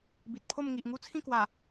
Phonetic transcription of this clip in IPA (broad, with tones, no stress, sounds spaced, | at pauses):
b i˨ t̚ pʰ o˥˧ m ŋ i˨ ʔ ŋ u˦ t͡sʰ ĩ˥˧ k w a˨˩